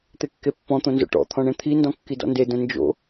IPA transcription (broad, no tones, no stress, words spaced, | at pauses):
t̪ekːepːɔ̃ t̪õnzo̰ʈɔ̰ t̪ʰɔ̃ɳẽt̪ʰi ndɔ̃kːidɔ̰nde də̃nd͡ʒo̰